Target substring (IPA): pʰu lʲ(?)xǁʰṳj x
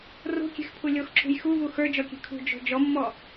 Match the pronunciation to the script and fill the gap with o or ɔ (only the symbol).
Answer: o